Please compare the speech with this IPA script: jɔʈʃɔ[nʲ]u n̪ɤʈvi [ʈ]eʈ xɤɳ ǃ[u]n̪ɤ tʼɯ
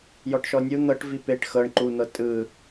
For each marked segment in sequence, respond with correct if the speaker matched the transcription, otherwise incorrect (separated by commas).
correct, incorrect, correct